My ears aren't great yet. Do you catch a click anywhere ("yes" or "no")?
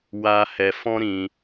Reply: no